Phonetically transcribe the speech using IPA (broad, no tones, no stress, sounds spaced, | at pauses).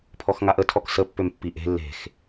pʰ ɔ x ŋ a ʔ ə tʰ ɔ k s ə pː ø m pː i ʔ e̤ lː e̤ x